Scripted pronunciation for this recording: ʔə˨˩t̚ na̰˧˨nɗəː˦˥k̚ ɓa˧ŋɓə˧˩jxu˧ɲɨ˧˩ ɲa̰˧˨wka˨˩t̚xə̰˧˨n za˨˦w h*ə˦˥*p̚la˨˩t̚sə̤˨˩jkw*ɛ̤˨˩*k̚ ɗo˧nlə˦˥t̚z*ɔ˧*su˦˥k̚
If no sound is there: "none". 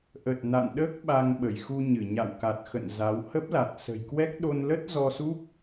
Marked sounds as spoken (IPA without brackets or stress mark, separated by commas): ə˦˥, ɛ˦˥, ɔ˧